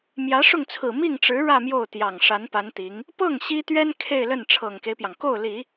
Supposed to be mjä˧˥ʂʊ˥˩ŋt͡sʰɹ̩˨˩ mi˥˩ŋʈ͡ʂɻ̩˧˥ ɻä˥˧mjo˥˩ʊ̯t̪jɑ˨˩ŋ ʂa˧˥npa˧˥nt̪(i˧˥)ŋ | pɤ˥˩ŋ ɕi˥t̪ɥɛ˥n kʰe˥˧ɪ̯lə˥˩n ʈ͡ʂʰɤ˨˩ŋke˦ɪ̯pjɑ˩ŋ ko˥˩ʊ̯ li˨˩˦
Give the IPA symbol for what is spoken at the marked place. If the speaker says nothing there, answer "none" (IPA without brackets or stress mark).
i˧˥